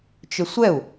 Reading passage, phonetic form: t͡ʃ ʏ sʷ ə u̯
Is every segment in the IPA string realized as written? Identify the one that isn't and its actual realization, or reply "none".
ə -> ɛ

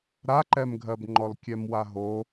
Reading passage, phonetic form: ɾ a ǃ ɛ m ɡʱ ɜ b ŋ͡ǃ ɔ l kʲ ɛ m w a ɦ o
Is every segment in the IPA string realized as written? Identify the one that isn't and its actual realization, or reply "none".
none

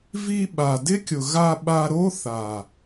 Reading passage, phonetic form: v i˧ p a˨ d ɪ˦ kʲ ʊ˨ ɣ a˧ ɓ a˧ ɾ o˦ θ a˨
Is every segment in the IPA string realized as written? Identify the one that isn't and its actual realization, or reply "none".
p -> ɓ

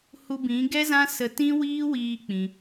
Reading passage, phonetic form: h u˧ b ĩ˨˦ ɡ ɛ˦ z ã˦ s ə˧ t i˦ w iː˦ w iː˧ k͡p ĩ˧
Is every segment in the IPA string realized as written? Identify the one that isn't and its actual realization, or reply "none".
i˦ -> ĩ˦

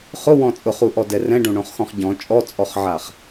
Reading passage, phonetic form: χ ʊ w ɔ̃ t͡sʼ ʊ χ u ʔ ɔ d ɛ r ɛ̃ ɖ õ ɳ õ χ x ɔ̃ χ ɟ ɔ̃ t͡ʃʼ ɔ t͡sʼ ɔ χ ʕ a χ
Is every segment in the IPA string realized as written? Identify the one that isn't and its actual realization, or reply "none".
none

